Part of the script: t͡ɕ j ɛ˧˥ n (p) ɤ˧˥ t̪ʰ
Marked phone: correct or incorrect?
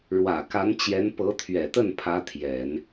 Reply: correct